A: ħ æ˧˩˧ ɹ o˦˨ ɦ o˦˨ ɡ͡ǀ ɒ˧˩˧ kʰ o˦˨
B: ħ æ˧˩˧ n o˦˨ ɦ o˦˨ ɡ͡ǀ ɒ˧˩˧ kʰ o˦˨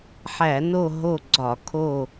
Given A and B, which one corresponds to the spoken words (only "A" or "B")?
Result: B